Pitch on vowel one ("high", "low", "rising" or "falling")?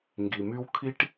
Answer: low